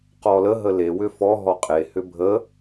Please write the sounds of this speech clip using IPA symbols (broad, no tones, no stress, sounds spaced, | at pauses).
q ɔ l ə ɦ ə l e w ʏ f ɔ ɦ ɔ qʼ e h ʏ bʱ ə